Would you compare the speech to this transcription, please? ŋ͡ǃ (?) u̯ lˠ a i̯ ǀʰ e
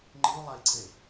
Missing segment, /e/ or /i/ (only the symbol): i